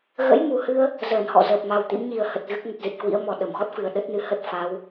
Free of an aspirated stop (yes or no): yes